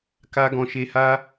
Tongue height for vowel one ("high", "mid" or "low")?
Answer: low